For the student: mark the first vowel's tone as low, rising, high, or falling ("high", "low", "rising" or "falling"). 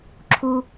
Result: low